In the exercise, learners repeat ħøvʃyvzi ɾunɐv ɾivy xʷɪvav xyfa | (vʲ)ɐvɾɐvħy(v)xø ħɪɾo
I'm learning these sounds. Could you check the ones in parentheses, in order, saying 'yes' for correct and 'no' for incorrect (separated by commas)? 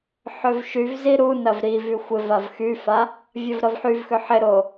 yes, yes